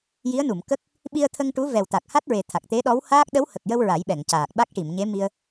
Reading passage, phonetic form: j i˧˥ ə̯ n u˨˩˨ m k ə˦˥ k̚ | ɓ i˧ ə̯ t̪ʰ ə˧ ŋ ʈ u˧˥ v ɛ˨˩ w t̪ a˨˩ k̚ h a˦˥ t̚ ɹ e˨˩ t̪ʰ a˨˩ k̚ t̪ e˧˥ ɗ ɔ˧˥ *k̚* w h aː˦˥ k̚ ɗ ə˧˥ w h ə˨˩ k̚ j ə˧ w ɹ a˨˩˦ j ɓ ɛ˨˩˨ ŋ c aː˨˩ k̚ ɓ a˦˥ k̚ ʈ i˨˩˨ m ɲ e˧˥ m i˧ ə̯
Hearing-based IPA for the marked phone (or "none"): none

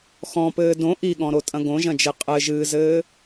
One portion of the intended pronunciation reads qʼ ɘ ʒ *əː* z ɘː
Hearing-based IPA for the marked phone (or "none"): ɨː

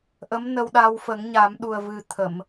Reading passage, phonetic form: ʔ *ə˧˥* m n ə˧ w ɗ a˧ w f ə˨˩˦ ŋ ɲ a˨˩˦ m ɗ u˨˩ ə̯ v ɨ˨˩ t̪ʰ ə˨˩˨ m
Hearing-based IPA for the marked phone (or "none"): ə˧˥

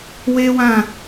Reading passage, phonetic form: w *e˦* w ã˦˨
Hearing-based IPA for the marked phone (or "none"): e˦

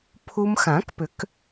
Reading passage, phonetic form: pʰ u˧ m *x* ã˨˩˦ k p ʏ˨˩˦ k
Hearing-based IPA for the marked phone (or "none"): x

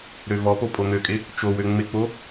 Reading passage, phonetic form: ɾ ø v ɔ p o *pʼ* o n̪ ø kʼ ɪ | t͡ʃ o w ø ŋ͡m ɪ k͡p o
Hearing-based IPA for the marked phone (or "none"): pʼ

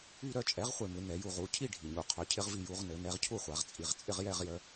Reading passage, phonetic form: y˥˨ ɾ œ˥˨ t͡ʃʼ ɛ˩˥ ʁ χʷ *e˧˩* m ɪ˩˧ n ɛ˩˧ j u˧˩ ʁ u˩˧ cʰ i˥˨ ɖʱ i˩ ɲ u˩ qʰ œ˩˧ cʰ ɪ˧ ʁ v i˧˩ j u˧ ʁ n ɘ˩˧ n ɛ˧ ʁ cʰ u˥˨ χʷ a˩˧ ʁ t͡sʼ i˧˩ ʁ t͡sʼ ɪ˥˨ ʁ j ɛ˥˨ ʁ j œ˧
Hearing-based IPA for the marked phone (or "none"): e˧˩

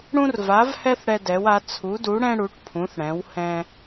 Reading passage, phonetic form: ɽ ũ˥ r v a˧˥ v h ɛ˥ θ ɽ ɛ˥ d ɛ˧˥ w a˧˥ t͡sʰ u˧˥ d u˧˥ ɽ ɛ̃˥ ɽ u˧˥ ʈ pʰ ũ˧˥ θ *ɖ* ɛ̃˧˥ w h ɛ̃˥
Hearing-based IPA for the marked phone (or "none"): ɽ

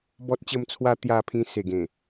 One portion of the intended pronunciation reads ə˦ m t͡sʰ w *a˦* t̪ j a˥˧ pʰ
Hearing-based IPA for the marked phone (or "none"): a˦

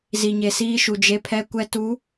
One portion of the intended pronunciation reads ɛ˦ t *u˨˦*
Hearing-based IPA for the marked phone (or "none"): u˨˦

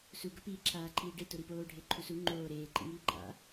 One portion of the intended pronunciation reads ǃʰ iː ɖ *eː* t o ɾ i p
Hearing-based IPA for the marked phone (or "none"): e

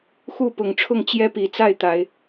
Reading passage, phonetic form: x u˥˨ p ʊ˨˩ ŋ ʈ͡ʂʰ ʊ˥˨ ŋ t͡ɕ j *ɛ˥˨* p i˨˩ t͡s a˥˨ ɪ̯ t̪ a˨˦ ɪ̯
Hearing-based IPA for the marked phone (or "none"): ɛ˦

